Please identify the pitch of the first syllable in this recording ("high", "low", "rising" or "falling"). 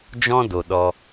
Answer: high